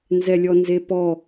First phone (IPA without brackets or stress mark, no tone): n